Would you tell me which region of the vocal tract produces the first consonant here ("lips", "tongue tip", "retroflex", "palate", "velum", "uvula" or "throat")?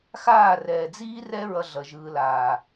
velum